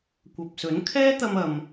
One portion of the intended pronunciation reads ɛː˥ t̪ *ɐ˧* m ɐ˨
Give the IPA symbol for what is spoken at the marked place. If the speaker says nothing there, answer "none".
ɐ˧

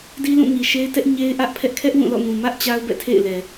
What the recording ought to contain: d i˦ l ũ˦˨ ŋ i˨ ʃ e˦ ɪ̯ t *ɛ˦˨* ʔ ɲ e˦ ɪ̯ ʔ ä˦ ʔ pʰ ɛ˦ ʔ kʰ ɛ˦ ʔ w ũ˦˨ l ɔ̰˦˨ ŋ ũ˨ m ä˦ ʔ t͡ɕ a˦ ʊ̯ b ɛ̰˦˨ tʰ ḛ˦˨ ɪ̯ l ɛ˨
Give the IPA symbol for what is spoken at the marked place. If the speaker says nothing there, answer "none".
ɛ˦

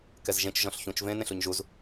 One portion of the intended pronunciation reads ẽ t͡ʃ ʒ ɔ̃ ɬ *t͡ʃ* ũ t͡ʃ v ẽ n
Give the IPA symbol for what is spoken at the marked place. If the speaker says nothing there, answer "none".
ç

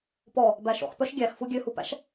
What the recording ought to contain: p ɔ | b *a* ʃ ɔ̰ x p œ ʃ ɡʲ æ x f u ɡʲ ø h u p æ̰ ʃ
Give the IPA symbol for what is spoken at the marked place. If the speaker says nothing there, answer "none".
æ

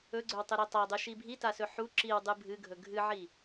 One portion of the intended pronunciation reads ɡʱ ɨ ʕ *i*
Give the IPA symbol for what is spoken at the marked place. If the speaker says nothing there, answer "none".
i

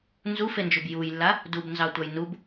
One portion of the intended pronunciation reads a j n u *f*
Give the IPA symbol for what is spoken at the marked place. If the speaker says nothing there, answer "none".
b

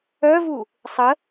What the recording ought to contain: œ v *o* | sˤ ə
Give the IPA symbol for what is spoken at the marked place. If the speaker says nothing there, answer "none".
u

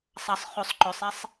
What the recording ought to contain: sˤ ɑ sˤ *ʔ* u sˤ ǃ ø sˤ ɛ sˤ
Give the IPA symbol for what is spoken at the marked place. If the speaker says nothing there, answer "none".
χ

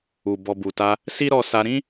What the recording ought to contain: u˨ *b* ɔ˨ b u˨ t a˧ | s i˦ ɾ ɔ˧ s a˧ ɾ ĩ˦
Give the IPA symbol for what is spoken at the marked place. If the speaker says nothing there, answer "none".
b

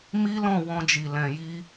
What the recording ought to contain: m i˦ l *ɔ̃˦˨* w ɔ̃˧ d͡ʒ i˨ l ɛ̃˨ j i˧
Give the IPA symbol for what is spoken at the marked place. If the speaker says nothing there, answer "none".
ɔ̃˦˨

